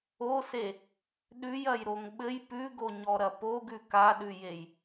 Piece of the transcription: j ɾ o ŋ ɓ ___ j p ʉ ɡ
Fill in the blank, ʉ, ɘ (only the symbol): ɘ